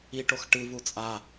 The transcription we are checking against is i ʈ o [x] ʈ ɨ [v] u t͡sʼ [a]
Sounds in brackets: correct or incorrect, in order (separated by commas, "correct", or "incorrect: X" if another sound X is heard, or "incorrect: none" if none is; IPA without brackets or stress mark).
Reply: correct, correct, correct